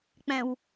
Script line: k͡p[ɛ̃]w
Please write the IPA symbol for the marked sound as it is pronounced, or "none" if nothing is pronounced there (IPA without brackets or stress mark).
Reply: ɛ̃